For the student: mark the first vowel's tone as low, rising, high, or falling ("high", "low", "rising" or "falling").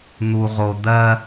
low